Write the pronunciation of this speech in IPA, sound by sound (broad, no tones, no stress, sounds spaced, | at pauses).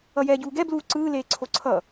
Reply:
ʌ j ɛː ɟ uː ɡ ɛ b l uː ǀ ɯː l eː ǀʰ o ǀʰ ʌ